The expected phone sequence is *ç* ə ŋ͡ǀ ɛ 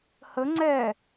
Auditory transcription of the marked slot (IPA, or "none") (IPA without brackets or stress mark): h